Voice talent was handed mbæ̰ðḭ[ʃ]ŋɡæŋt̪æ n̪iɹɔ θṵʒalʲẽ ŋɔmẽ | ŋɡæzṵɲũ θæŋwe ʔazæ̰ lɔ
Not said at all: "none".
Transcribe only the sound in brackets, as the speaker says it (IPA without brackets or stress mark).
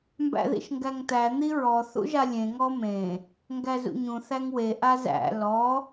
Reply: ʃ